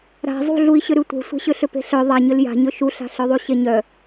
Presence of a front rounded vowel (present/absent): present